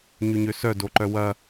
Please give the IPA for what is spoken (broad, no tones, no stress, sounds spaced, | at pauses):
ɲ y ɲ ø s œ d o ǃ œ w ɐ